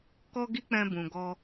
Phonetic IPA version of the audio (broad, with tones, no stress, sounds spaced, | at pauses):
k ɔ˦ ɡ i˦ k͡p ɛ̃˧ b ũ˨ ɡ ɔ˧